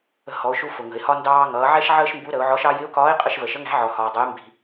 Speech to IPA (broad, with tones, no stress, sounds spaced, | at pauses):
ə̤˧ h ɔ˩˧ ʊ̯ ʃ u˧ f ʊ˩ ŋ ə̤˩ ɪ̯ h ɒ˥ n d ɑː˧ ŋ ʌː˩˧ ʕ ɛ˥ ʃ ʕ əː˥ ʃ m b u˧˥ ɾ ə˩˧ ʊ̯ ʕ ɔ˧˥ ʃ ɑ˥ j ɪ˧˥ ʊ̯ k ɒː˧˥ ɪ̯ qʼ ə˧ ʃ v ə˩ ʃ ə˧˥ ŋ æ̤˧˥ ʕ ɔ˩ h ɒː˩ dˤ ə˩˧ j m b i̤˩